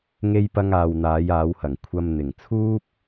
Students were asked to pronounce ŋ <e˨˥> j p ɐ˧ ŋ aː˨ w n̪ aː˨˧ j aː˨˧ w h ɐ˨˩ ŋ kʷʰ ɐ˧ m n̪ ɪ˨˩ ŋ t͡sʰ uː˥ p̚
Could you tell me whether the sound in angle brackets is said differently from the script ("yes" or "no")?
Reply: yes